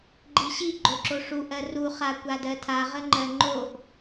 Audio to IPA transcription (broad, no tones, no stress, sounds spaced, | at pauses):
ɡ͡ǃ i ɕ i ɡ͡ǃ o ǁ o ʂ u ʔ ɜ r u χ a kʷ a d ɜ tʰ a ʁ ə ŋ͡ǃ ɜ ŋ͡ǃ o ʔ